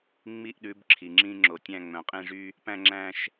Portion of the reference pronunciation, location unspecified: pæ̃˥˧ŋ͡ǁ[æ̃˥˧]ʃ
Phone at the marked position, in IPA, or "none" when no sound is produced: æ̃˥˧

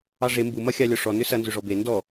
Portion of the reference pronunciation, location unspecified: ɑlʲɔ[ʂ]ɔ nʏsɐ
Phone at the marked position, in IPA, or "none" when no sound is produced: ʂ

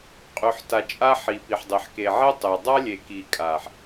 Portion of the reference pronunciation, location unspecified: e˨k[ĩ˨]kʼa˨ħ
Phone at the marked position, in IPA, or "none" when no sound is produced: i˨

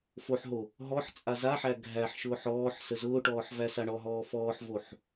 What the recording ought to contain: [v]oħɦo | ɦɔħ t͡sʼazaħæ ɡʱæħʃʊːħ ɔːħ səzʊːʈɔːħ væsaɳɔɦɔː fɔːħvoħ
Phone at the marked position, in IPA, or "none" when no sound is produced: f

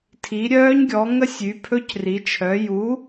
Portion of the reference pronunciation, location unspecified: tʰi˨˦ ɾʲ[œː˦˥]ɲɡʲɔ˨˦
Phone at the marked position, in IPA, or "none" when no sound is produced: œː˦˥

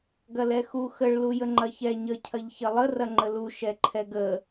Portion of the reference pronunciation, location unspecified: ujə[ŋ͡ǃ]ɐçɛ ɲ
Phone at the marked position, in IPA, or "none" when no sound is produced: ŋ͡ǃ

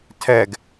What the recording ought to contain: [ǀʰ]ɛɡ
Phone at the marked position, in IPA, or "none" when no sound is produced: tʰ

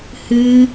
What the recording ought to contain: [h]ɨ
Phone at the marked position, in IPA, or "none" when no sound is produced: h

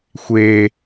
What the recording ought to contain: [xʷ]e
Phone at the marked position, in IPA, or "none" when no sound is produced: xʷ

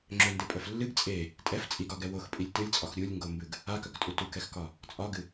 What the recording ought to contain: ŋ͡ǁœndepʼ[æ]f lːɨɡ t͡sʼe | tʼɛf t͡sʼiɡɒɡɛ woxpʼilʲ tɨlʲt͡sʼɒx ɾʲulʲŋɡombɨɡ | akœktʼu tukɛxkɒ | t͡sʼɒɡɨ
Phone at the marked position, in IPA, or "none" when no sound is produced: œ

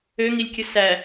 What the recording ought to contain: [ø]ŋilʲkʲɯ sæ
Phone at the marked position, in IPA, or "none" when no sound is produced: ø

